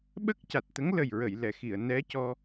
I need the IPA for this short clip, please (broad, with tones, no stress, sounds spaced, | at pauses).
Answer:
ɓ ə˦˥ k̚ c a˨˩ t̚ t̪ ə˧˥ ŋ l ə˨˩ j ɹ ə˨˩˨ j l ɛ˨˩˨ x i˨˩˨ ə̯ n ɛ˧˥ c ɔ˧